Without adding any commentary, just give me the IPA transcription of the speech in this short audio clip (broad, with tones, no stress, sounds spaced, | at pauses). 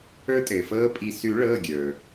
ə˞˦ tʼ ɘː˩ f ɤː˦ pʼ i˧˩ s ʉ˨˩˦ ɭ ɤː˩˧˩ ɡʲ ə˞˩